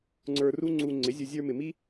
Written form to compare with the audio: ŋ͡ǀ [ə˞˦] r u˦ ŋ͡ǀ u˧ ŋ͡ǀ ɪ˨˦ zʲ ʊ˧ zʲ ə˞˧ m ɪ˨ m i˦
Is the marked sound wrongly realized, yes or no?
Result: yes